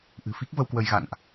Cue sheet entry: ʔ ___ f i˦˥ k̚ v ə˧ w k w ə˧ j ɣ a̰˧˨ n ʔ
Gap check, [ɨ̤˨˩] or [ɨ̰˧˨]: ɨ̤˨˩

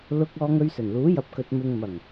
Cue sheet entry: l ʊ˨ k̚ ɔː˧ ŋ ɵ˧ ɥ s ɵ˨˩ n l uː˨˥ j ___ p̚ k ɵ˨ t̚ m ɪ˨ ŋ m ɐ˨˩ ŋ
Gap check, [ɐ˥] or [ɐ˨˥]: ɐ˨˥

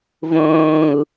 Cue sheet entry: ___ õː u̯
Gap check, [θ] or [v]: v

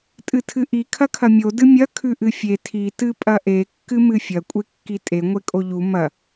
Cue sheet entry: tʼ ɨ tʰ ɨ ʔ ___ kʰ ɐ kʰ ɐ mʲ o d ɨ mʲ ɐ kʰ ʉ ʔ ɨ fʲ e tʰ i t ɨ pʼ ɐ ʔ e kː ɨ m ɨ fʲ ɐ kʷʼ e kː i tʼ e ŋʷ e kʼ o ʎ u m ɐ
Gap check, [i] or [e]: i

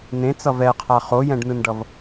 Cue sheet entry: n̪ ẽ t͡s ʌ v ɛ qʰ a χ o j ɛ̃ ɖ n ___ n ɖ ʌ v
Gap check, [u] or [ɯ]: ɯ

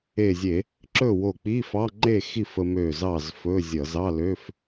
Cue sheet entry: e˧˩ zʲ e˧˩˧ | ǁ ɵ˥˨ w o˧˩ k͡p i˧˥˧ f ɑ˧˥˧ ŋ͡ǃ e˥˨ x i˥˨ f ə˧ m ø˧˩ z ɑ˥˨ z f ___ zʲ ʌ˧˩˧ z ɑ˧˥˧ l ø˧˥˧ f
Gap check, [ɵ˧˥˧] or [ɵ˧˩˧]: ɵ˧˥˧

